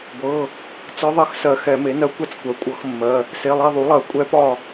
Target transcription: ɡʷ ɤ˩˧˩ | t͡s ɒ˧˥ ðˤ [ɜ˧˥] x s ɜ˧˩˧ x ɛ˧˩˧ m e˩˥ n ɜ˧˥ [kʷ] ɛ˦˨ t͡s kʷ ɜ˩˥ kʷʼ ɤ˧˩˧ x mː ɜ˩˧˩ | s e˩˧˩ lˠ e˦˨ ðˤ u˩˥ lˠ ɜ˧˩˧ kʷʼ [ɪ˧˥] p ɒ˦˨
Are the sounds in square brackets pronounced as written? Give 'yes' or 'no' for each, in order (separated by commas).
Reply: no, yes, no